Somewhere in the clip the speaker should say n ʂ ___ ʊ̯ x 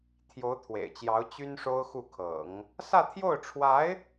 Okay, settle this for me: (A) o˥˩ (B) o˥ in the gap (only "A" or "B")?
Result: B